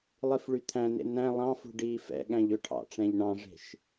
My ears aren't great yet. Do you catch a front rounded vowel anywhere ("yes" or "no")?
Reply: yes